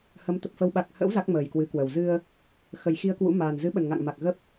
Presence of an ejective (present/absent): absent